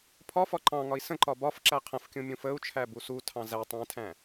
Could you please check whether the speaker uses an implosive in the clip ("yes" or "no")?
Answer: no